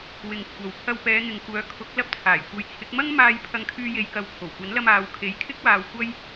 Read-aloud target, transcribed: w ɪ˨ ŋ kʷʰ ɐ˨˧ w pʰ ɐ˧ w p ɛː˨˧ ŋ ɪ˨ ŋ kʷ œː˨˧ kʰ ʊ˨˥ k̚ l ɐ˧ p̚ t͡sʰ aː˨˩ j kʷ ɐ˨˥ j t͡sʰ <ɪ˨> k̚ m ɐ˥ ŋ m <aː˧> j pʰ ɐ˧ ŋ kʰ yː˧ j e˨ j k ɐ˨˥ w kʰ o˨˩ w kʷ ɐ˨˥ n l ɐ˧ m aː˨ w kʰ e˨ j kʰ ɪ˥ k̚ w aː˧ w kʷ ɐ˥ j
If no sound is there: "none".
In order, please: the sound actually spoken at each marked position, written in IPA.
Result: ɪ˨˥, aː˧

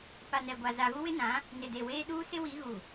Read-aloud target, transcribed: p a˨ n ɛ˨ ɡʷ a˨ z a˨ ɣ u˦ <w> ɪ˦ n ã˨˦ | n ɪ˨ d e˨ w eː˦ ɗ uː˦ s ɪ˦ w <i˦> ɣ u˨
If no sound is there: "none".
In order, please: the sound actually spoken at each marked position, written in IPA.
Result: w, i˨˦

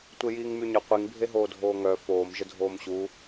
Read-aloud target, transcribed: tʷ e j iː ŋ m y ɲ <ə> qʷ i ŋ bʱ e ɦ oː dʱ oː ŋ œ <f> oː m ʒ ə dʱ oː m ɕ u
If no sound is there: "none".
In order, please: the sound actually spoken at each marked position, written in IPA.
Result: ə, f

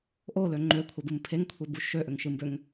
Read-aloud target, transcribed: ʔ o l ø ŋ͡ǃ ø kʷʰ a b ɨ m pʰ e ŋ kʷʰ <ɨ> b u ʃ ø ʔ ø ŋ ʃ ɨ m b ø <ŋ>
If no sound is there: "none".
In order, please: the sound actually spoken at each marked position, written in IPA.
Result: e, ŋ

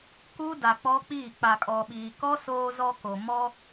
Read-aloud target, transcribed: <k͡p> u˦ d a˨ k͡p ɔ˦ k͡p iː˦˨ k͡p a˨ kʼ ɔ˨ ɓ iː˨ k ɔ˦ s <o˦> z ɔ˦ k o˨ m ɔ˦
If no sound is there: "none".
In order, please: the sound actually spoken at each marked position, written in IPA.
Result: k, oː˦

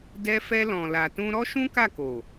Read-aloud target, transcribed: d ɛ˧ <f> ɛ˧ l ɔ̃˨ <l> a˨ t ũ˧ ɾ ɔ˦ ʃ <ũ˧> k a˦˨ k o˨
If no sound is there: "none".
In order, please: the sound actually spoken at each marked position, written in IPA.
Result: f, l, ũ˦

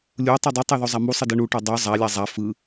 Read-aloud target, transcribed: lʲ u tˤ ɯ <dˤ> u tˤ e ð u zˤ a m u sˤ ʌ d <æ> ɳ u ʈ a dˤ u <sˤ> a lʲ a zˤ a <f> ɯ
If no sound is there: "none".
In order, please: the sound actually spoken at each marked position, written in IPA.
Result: dˤ, ɛ, zˤ, f

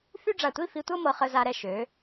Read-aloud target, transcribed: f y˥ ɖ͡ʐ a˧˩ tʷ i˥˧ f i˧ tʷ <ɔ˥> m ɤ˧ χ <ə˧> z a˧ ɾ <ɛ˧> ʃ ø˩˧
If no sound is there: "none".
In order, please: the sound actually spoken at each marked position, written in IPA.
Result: ɤ˥, ə˧, ɛ˧

